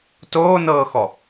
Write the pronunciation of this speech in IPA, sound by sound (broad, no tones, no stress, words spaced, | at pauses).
toːnɤːxɔ